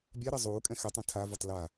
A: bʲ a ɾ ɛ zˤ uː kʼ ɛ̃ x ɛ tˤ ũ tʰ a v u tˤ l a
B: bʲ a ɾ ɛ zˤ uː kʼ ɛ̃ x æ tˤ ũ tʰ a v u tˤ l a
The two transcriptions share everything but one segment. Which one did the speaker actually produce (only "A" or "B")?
A